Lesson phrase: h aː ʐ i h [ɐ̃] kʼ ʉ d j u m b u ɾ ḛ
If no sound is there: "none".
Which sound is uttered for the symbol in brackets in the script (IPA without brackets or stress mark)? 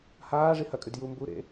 ɐ